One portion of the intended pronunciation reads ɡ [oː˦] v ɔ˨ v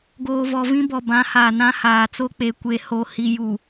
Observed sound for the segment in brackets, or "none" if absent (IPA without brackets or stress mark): oː˨